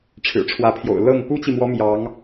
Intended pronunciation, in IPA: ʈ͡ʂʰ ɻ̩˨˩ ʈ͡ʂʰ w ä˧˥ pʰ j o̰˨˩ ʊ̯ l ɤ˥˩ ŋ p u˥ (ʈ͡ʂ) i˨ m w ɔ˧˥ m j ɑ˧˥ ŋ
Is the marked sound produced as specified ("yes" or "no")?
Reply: no